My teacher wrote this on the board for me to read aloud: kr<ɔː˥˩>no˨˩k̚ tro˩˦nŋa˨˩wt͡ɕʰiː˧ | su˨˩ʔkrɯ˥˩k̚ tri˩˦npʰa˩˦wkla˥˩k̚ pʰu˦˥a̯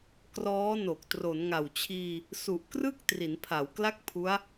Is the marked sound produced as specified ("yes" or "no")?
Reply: no